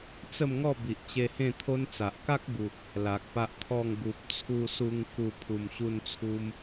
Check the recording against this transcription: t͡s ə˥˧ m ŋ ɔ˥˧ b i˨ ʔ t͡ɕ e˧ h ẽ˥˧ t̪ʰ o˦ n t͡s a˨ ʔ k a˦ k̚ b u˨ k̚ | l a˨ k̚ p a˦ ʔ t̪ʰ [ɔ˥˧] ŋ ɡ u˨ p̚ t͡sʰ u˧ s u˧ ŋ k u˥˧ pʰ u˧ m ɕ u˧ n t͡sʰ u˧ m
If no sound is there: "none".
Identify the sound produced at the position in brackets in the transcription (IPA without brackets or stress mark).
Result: ɔ˥˧